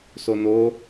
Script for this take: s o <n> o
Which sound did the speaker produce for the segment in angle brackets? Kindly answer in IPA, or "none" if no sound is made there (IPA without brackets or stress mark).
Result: n